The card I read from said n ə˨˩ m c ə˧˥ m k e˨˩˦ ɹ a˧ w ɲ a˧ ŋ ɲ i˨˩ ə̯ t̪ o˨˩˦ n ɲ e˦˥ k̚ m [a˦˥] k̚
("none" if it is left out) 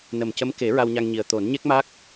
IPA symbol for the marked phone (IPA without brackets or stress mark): a˦˥